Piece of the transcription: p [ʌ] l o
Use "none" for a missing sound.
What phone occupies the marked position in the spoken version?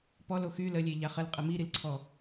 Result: ɔ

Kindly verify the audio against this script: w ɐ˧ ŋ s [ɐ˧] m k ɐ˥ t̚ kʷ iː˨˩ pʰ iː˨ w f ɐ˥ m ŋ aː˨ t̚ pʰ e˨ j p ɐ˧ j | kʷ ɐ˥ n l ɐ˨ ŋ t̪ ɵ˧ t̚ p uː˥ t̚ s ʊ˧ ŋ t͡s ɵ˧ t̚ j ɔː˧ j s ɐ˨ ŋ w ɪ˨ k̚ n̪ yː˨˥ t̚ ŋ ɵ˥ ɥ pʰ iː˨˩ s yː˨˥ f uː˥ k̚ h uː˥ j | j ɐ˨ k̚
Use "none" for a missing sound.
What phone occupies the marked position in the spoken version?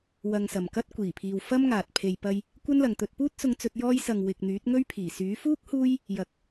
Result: ɐ˨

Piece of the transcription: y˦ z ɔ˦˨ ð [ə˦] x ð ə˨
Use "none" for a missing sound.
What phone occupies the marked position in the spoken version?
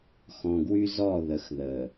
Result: ə˨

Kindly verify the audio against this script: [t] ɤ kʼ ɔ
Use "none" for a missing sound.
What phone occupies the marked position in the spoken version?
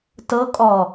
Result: t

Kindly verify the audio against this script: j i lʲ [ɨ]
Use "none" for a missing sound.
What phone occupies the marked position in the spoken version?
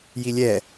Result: ɛ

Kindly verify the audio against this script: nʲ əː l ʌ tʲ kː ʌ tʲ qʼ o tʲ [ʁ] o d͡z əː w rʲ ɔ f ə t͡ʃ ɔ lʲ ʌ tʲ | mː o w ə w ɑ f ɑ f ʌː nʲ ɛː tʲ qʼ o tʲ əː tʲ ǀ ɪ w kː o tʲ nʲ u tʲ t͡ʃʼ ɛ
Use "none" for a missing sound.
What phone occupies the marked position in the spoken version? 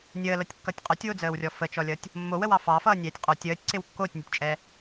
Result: w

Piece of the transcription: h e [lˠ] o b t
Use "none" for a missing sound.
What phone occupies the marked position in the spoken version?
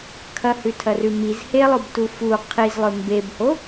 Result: lˠ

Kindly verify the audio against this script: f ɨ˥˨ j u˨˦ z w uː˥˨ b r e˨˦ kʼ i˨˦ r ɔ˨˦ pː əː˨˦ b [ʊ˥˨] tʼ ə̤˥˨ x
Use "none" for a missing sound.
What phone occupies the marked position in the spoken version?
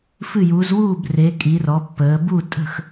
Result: u˥˨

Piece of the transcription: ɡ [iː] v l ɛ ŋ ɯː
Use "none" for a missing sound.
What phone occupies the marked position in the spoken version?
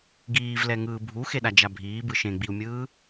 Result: iː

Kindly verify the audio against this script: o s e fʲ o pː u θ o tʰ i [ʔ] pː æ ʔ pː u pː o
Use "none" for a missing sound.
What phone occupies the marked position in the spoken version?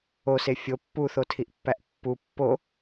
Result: ʔ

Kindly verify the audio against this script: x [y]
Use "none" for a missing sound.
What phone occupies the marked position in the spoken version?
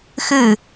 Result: ɨ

